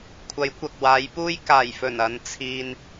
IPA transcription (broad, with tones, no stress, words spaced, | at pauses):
kʷʰɐ˨˥jkʷɐ˨k̚waː˨˧jpuː˥j kaː˨˩jfɵ˨˩n ɐ˨˧n t͡sʰiː˧n